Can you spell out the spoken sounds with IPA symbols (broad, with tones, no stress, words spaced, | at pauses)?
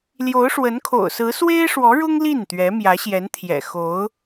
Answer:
ljo˧˥ʊ̯ʂwə˧˥nkʰo̰˨˩ʊ̯sɹ̩˧˥ swe˥ɪ̯ʂwɔ˧˥ɻʊ˥ŋ li˥˩n t̪ɥɛ˧˥mjä˧˥ɕjɛ˧˥nt̪ʰjɛ̰˨˩ xo˧˥ʊ̯